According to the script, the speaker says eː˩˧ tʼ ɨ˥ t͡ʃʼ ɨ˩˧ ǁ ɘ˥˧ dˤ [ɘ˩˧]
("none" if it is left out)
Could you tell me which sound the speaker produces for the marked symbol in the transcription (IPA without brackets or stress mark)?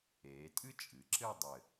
ɘ˧˩